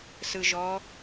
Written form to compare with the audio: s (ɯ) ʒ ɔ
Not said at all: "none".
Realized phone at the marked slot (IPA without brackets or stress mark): ɯ